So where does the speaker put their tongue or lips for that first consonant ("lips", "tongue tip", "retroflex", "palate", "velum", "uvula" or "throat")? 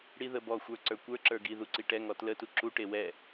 retroflex